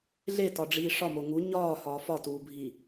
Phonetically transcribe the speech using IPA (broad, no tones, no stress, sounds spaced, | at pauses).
ɮ e t ɒ ɖ͡ʐ iː ʂ ɒ m o ŋ u ɲ ɒː h ɒː f ɒ t uː bʱ iː